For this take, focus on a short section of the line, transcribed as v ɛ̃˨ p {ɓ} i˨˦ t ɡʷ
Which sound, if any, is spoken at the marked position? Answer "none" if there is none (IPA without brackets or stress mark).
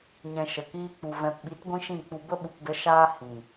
ɓ